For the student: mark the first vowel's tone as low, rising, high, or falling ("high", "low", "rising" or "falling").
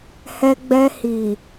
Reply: high